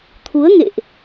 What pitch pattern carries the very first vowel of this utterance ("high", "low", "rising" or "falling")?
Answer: rising